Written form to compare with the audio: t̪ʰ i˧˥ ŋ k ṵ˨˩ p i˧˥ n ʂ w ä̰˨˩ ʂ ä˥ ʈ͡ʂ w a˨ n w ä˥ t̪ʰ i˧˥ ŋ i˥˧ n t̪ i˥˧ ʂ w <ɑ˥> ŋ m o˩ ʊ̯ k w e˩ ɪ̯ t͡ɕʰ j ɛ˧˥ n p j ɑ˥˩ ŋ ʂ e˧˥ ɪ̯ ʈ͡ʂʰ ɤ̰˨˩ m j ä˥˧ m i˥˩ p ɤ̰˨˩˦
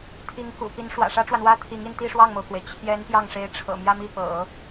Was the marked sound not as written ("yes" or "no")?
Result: yes